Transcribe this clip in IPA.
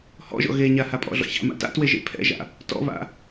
h ɔ̰ ʒ ɔ̰ ɣ e ɲ a h a pʼ ɔ̰ ɮ ɔ̰ ç a̰ m a̰ t a̰ t w e ʒ ḛ pʰ ɛ̰ ʒ a̰ | t ɔ̰ β a̰

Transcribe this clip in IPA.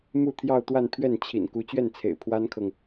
m u˥˧ t̪ʰ j ɑ˥˧ ʊ̯ t̪ w a˥˧ n pʰ ɥ ɛ˥˩ n t͡ɕʰ ḭ˨˩ n k u˧˥ t͡ɕ ɥ ɛ˥˩ n t͡sʰ ḛ˨˩ ɪ̯ pʰ w a˥ n kʰ ɤ˨ ŋ

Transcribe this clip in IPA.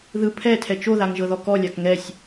ð ɯ pʰ ɛ tʰ ɛ t͡ʃ o ð a ŋ ʒ ɤ ð ɔ k ɔ lʲ a k ŋ ɛ sʲ

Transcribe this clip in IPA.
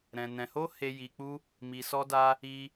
ɾ ɛ̃˧ n ɛ̃˧ h o˦ h e˧ j i˧ k͡p u˦ | m i˧ s ɔ˦ d a˦ | i˧

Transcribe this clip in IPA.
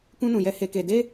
k ũ˦ n ũ˧ j ɛ˦ h e˧ k e˧ d e˦

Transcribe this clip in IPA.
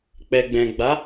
k͡p ɛ˨ ɡ͡b ɛ̃˨ ɡ͡b a˨˦

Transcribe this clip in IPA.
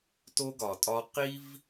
t o˦ ɡ ɒ˨ tʼ ɒ˦ q i˦ v

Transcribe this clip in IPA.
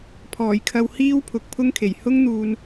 pʰ ɔː˨˩ j kʰ ɐ˧ w h iː˥ w pʰ ʊ˨˥ k̚ pʰ ʊ˥ ŋ kʰ e˨˩ j h ʊ˥ ŋ n̪ uː˨ n

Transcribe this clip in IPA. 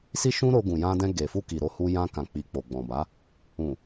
s i˦ ʃ ũ˦ ɾ o˧ ɡ ũ˨ j ã˧ d ɛ̃˧ ɡ e˨ f u˧ k i˨ ɾ o˧ h u˧ j ã˧ k ã˨ k͡p i˨ k͡p o˨ ɡ͡b ɔ̃˨ b a˨˦ | ũ˨

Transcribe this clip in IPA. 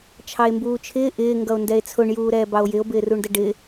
t͡ʃʰ ɑ e̯ m b uː t͡ʃʰ ɪː ʔ ɪː ŋ ɡ ʌ o̯ n d ɛ e̯ t͡sʰ ʊ ɳ j uː ɾ ɛː b ɑ o̯ j ɪ o̯ b ɪː r u ɳ d ə ɖ ɪ

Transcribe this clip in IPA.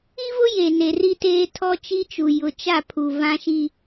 i˦ v ʊ˦ j e˨ n e˨ r i˦ t eː˦ tʰ ɔ˦ t͡ʃ i˦ t͡ʃ u˨ j ʊ˨ t͡ʃ a˦˨ pʰ u˨ v ã˦ ʃ i˦

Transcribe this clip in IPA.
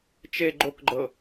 t͡ʃ e ɡ͡ǃ o k ɡ͡ǃ ɤ

